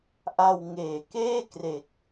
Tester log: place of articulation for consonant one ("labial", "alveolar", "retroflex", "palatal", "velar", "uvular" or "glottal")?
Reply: glottal